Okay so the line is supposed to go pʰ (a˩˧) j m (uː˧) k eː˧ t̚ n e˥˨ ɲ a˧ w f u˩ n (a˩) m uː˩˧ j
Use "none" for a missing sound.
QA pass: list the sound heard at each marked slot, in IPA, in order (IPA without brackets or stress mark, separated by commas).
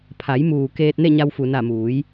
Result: a˩˧, uː˩, a˧˩